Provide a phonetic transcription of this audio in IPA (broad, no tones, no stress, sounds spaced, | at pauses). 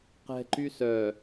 q ɛ̤ ǃ y s œ